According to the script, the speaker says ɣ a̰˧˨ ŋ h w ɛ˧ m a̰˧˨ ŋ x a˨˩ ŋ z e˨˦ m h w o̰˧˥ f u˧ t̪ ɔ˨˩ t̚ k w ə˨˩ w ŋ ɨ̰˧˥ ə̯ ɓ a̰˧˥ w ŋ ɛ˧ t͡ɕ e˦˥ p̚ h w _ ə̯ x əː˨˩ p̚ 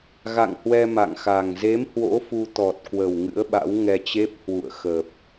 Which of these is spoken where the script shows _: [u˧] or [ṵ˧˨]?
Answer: ṵ˧˨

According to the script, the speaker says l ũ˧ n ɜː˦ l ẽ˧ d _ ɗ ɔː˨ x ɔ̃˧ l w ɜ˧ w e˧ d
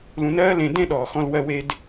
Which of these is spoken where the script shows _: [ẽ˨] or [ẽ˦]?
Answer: ẽ˦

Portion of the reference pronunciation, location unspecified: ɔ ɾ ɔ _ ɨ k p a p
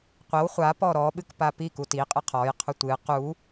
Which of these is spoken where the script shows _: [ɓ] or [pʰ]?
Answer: ɓ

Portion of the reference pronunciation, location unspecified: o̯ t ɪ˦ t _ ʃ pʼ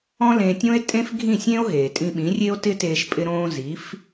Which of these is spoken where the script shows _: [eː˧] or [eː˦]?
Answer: eː˧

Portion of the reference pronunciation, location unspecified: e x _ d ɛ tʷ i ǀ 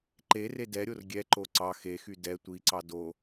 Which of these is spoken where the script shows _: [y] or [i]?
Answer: y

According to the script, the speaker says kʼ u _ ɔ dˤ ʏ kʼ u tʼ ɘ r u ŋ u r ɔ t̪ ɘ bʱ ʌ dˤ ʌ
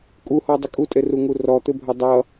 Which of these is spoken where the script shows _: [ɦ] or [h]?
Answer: h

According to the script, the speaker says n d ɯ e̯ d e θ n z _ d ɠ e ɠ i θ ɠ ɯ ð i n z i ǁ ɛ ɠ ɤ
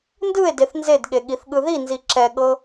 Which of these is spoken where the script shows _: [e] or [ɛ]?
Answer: e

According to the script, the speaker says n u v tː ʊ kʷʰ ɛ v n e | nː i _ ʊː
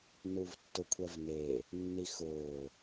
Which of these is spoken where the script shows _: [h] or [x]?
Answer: x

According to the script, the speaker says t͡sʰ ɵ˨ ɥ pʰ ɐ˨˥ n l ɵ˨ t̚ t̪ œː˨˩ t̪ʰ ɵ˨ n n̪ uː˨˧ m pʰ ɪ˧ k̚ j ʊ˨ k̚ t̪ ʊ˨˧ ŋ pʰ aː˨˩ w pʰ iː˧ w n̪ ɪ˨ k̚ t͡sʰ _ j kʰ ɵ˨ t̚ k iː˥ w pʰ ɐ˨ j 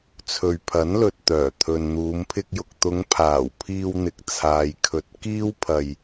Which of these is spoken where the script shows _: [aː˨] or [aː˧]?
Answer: aː˨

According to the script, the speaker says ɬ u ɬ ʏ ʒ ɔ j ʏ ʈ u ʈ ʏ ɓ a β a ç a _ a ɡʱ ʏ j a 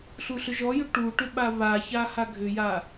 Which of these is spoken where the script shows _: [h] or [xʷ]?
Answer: h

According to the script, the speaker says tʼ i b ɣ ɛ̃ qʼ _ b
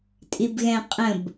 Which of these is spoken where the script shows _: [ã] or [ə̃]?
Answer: ə̃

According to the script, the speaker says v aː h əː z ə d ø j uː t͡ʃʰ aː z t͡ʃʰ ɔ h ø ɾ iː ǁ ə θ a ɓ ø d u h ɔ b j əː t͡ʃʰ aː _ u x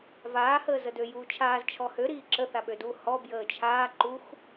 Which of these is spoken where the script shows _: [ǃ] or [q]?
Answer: ǃ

